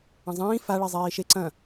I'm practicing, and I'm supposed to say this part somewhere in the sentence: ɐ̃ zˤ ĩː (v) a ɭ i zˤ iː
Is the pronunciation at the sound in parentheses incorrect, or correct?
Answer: incorrect: f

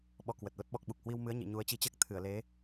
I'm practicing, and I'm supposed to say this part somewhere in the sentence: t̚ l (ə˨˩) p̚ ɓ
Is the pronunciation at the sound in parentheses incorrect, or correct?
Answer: incorrect: ə˦˥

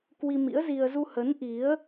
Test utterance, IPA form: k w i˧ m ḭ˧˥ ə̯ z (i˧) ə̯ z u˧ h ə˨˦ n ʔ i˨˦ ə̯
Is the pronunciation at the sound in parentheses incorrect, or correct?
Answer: correct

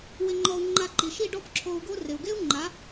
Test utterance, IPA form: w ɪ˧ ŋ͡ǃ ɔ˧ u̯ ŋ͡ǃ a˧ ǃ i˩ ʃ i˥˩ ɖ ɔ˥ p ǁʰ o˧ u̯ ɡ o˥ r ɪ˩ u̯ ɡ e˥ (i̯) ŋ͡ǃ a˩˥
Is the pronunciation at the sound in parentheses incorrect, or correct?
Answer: incorrect: u̯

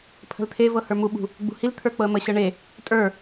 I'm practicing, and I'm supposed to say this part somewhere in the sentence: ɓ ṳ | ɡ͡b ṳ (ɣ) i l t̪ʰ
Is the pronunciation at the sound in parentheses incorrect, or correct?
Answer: incorrect: h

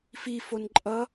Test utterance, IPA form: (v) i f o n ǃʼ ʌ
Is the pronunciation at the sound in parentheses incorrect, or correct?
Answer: incorrect: f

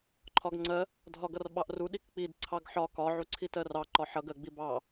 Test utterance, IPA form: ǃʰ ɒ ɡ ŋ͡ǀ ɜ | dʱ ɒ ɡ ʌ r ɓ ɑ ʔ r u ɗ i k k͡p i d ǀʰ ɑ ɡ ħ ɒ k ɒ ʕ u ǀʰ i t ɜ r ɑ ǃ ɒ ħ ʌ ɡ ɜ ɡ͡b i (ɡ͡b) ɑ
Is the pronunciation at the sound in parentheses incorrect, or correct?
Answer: incorrect: b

